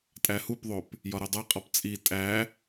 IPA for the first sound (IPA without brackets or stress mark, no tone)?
tʼ